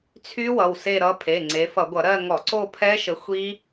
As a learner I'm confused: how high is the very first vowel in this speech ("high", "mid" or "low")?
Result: high